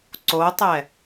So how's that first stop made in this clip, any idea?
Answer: click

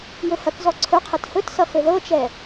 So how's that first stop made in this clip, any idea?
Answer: plain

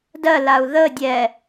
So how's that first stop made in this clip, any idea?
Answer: plain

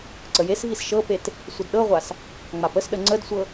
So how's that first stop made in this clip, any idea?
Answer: click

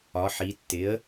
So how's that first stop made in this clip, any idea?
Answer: plain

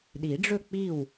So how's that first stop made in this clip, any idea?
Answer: implosive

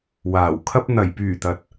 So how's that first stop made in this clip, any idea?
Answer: aspirated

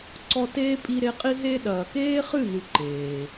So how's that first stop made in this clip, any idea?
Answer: click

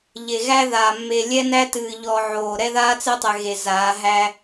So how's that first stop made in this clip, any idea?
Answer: plain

